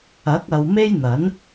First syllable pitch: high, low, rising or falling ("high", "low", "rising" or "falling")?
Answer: rising